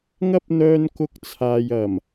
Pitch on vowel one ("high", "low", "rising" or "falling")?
high